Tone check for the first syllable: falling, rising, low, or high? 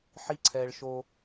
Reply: high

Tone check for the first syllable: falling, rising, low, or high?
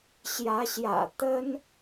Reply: rising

